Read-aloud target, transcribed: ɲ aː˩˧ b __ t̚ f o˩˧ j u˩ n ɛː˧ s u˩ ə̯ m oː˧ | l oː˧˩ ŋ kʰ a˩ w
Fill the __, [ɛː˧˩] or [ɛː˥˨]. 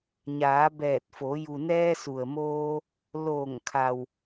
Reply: ɛː˧˩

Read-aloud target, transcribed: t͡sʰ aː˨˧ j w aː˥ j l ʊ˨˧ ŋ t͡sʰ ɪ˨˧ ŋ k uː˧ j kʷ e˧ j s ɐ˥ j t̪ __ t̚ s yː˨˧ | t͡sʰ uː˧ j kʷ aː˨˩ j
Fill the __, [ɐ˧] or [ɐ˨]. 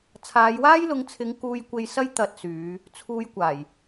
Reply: ɐ˧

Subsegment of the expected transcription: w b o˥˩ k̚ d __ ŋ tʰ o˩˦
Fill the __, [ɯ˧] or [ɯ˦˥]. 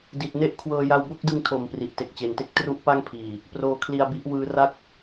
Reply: ɯ˧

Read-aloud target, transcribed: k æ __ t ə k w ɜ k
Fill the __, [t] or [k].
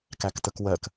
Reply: k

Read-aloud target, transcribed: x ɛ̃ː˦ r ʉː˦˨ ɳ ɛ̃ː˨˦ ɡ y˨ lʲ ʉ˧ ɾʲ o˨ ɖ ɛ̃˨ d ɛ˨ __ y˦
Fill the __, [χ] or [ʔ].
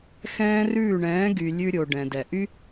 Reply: ʔ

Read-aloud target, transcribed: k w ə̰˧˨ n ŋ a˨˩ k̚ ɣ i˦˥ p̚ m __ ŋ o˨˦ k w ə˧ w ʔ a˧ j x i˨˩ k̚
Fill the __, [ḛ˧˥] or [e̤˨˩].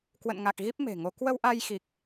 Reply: e̤˨˩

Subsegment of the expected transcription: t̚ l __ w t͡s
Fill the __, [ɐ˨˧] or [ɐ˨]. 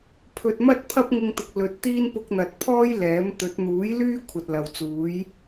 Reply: ɐ˨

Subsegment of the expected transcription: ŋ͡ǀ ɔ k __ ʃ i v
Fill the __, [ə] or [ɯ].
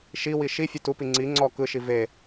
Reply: ɯ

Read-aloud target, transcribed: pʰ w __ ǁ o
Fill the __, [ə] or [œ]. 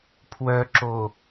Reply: œ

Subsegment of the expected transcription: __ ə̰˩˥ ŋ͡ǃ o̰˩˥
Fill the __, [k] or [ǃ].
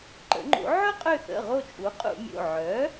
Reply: ǃ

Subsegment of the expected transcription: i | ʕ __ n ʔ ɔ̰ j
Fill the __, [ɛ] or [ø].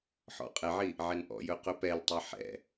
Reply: ɛ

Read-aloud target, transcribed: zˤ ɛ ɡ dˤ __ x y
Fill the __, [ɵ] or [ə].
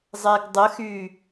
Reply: ə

